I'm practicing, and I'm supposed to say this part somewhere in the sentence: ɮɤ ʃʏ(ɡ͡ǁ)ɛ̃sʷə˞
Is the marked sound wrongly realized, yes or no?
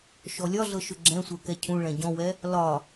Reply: no